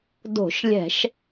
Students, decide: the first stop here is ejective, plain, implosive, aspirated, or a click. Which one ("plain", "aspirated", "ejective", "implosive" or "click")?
plain